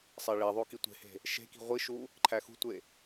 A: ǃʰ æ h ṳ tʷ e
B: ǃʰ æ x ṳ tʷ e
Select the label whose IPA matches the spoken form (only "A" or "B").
B